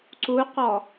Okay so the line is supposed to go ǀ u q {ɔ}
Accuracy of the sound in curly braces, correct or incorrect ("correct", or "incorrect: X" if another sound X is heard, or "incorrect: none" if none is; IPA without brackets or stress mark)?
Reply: correct